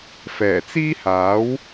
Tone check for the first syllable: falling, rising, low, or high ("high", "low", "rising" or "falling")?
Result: low